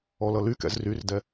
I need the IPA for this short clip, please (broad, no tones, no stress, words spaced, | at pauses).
ɔlʌlykɛ̰z ryrdɛ